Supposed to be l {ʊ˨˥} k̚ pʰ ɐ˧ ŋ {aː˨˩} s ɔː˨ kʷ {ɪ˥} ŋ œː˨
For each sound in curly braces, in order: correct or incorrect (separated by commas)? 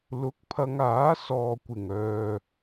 correct, incorrect, incorrect